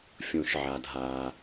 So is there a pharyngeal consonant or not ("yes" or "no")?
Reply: yes